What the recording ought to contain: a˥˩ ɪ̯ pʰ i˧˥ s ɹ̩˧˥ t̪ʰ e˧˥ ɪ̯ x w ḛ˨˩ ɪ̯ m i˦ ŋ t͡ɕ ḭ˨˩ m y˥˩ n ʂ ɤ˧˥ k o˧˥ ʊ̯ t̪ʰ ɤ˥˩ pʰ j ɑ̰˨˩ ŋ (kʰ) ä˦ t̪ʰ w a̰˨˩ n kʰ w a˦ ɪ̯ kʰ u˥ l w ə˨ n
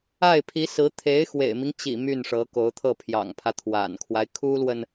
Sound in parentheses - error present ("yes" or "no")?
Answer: yes